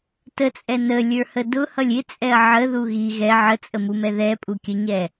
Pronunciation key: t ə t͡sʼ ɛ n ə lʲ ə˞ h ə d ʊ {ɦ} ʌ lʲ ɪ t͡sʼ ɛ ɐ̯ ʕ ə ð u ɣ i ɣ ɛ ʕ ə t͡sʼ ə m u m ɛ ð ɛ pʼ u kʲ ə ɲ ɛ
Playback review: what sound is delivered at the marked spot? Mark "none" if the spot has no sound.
h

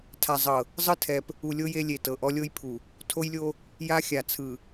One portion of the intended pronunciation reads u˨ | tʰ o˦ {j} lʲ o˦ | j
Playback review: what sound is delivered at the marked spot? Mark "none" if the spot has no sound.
j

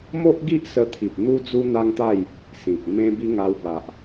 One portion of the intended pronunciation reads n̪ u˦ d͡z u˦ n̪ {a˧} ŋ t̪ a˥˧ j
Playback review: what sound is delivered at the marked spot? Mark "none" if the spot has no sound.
a˦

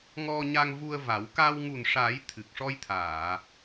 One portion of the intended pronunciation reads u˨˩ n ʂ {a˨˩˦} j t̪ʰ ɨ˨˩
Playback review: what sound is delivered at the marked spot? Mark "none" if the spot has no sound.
a˨˩˦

